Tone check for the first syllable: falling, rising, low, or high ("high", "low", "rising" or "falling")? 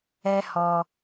high